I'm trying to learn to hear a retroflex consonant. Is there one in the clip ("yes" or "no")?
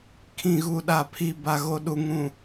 no